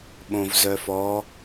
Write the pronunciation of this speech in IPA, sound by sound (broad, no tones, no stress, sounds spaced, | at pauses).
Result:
ɓ õ v z œ f ɔ